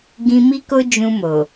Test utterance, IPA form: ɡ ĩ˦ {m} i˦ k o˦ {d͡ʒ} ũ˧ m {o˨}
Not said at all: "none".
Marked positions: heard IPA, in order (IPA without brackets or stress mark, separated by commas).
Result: m, d͡ʒ, o˨